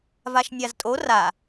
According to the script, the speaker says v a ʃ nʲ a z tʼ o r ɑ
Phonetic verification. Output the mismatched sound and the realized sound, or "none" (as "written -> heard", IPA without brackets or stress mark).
ɑ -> a